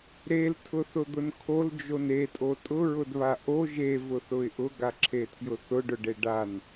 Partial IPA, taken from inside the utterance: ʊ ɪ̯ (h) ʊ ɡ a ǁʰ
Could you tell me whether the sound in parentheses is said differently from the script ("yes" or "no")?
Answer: yes